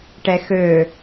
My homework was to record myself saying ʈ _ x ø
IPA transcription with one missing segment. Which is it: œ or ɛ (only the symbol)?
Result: ɛ